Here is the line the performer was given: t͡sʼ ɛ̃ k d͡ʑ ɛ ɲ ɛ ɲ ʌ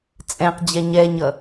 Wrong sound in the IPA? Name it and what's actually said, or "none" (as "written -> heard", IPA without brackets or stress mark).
k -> q